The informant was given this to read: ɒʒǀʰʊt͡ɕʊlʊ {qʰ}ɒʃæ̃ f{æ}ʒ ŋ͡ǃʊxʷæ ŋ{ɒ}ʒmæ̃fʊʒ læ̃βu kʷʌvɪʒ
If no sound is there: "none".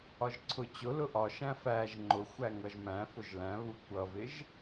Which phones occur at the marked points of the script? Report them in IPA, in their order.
ʔ, æ, ʌ

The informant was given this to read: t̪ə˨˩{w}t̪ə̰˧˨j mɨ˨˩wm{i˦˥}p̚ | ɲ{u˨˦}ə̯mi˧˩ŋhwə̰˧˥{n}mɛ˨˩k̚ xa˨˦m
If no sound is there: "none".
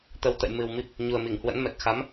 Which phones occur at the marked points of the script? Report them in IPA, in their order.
w, i˦˥, u˨˩, n

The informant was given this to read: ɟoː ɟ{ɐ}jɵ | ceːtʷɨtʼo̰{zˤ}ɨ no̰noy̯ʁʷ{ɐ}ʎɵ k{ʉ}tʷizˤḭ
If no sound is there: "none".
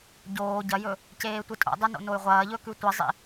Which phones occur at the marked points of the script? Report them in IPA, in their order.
ɐ, dˤ, ɐː, ʉ

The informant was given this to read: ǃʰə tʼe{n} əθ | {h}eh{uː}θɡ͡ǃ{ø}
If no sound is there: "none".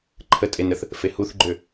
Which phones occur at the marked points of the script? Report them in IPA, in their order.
n, f, u, ø

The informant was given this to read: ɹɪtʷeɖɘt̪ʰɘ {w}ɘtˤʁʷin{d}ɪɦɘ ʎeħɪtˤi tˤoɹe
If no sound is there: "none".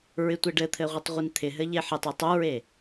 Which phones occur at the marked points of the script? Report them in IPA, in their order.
ʁʷ, t̪ʰ

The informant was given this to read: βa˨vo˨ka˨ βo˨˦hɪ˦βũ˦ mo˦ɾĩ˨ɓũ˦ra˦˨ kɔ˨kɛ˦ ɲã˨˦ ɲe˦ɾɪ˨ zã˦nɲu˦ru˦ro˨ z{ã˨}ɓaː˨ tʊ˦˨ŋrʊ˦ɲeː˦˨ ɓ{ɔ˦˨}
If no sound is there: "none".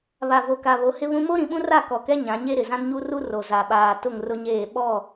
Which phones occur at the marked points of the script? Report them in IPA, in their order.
a˨, ɔ˦˨

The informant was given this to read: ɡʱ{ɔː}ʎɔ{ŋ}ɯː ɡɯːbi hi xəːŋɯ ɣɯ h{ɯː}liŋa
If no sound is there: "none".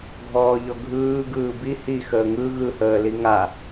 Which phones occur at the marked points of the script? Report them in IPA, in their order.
ɔː, ɡʱ, əː

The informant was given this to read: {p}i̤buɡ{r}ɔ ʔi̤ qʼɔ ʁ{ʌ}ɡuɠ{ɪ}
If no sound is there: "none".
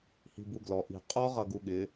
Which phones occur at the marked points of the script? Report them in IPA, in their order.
h, l, ʌ, ɪ

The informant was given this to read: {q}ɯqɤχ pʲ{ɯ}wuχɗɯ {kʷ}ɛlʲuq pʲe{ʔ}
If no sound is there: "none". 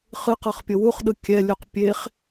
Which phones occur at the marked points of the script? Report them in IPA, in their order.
χ, ɤ, kʲ, χ

